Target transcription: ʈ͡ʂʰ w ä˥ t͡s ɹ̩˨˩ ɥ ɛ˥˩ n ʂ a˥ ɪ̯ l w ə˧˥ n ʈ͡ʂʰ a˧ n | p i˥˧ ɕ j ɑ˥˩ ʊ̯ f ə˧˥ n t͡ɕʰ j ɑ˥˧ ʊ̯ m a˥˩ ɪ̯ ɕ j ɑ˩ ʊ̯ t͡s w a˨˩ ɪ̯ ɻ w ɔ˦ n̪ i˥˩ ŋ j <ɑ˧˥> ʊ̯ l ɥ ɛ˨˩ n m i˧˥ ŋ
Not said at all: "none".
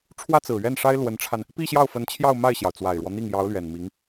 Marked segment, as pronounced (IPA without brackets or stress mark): ɑ˧˥